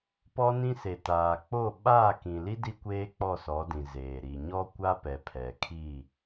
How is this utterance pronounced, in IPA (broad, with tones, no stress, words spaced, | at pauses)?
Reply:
pɔ˦nĩ˦ se˨taː˨k͡po˦˨ ɓaː˦˨kĩ˨li˦ di˦kʷeː˦ k͡pɔ˦˨sɔ˨˦dĩ˨zeː˨ ɾi˨ɲɔ˦kʷa˦ pɛ˨pʰɛ˨kʰi˦˨